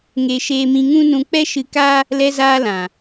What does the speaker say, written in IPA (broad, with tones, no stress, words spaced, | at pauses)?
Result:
ŋe˧ ʃeː˧mĩ˧ŋũ˦nũ˧ k͡pɛ˦ʃɨ˧ka˦ | lɛ˧zaː˧ lã˨